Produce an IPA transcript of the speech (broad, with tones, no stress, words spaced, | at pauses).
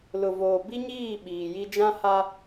lʊ˨voː˨ bi˦ɲiː˦˨ ɓiː˨ji˦ d͡ʒã˦ha˦